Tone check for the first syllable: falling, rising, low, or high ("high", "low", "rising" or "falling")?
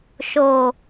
low